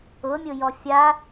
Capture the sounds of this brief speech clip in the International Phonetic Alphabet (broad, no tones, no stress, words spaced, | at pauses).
ʊmʲʊjɔ fʲa